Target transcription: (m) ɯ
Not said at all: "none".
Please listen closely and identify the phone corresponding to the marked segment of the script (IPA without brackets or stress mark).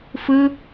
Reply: f